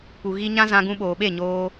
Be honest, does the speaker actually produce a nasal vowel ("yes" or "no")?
yes